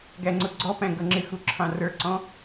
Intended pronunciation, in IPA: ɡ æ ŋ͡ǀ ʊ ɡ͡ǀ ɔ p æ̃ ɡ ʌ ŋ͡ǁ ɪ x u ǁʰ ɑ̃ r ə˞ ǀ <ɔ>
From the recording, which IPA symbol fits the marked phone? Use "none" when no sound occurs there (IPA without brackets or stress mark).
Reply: ɔ̃